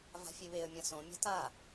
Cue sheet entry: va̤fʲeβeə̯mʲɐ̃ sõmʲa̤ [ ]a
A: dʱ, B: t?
B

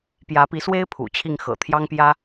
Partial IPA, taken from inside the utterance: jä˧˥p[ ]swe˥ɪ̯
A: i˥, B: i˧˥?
B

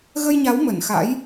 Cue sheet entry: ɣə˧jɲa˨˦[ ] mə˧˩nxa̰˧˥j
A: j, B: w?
B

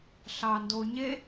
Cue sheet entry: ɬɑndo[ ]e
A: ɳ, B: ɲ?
B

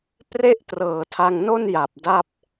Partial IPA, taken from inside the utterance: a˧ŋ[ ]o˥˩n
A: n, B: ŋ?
A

